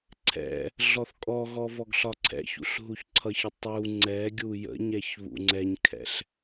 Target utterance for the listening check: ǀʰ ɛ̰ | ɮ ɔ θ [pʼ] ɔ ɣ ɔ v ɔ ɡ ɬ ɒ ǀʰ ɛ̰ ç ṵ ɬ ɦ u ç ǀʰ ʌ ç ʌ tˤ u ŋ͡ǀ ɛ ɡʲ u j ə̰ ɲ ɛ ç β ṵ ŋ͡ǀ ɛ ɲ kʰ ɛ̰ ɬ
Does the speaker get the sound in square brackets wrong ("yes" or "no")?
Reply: yes